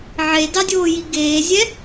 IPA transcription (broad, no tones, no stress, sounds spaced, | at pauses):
ʕ e d ɑ dʲ oː j i ɡ eː zʲ ɛ